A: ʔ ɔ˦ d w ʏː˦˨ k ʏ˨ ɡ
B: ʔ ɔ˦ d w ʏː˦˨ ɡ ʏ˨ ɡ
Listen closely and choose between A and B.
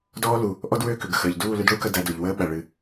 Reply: A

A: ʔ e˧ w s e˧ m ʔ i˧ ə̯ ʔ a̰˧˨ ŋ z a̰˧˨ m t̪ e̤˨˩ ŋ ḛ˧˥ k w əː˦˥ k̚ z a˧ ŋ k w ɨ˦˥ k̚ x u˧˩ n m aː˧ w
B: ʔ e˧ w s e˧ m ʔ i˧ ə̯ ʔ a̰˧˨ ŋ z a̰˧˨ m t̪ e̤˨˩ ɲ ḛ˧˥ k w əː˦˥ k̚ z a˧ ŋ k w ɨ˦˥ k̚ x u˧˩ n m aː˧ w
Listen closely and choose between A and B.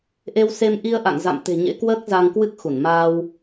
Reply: B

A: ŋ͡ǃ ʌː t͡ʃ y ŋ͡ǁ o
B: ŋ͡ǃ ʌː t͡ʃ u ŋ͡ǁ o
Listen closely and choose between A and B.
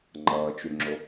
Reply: A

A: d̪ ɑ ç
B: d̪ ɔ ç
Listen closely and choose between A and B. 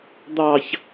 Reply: A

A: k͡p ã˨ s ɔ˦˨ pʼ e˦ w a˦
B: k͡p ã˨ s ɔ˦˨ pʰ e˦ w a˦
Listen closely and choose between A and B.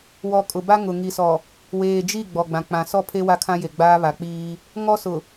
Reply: B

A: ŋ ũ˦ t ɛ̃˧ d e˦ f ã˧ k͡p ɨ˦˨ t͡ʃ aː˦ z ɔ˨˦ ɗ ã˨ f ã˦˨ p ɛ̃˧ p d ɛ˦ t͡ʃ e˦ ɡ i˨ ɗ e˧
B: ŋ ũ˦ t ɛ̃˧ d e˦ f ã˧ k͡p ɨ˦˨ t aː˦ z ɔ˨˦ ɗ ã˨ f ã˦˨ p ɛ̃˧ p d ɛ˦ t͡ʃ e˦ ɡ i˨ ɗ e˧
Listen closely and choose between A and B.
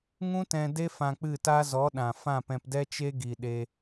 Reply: B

